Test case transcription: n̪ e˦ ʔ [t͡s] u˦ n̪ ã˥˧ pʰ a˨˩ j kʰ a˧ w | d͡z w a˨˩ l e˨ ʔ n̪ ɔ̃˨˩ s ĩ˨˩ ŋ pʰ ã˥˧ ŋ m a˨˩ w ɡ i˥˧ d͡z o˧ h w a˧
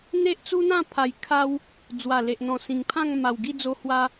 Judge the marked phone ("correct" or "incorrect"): correct